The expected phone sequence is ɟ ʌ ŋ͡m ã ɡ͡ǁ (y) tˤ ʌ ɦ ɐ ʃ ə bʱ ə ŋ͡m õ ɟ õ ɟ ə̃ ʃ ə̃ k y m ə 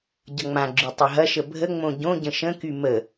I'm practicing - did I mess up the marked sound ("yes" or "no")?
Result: no